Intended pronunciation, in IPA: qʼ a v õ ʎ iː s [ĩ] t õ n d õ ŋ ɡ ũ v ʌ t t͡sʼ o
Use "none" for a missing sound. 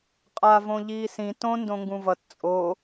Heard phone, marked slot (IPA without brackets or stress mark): ĩ